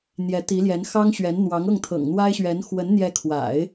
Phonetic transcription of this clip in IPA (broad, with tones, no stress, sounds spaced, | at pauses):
n̪ j ɛ˧˥ t̪ i˧˥ l j ɛ˧˥ n x ɑ˥ ŋ ɕ ɥ ɛ˧˥ n n̪ w ɑ˧˥ ŋ ɤ˥˩ ŋ t̪ʰ ɤ̰˨˩ ŋ n̪ w a˥ ɪ̯ ɕ ɥ ɛ˧˥ n x w ə˧˥ n n̪ j ɛ˧˥ kʰ w a̰˨˩˦ ɪ̯